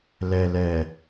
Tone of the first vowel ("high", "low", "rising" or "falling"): low